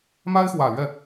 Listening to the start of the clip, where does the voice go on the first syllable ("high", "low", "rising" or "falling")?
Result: high